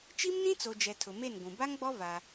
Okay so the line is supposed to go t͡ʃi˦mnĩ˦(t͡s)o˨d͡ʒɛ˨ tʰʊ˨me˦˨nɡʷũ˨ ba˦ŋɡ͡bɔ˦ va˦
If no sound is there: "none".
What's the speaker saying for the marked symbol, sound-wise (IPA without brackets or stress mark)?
t͡s